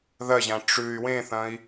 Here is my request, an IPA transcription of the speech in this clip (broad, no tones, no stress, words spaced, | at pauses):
ðɐʑã ʈ͡ʂʉy̯ wẽθɐ̃i̯